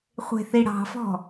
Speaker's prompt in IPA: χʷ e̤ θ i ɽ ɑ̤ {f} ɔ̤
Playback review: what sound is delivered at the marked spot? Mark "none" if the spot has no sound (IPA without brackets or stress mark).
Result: f